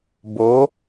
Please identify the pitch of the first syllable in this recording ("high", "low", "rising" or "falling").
rising